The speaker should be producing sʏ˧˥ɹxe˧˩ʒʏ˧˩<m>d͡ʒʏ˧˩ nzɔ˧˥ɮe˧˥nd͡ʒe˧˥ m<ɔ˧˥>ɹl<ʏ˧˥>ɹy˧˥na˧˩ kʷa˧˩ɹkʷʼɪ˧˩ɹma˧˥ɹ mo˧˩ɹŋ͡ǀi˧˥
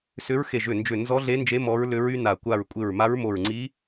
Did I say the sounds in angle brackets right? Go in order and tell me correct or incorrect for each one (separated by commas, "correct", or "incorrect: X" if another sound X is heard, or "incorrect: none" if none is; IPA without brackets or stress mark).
incorrect: n, correct, correct